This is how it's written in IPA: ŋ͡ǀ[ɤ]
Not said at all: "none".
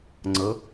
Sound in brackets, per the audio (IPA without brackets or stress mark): ɤ